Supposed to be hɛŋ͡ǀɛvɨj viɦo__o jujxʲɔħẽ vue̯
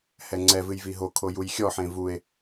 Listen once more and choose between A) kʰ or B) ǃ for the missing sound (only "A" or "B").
A